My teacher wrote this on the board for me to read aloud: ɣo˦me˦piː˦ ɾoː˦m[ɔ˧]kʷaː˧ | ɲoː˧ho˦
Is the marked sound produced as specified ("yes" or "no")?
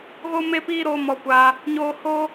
yes